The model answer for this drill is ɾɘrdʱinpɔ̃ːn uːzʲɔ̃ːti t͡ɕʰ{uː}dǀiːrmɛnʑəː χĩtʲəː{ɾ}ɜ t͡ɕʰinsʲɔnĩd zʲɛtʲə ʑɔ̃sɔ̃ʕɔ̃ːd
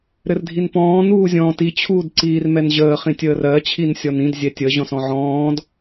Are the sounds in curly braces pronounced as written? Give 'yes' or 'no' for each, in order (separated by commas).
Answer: yes, no